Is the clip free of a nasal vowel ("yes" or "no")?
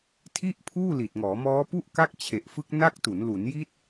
yes